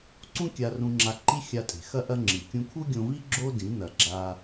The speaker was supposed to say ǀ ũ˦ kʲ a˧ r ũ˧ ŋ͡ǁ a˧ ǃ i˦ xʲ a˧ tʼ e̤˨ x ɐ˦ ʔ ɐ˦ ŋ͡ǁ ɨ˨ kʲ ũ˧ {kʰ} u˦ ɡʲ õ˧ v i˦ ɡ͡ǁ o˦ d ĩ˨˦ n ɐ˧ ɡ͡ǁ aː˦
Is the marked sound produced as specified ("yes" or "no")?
yes